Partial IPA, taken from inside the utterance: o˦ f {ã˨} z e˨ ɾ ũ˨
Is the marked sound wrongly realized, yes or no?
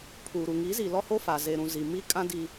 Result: yes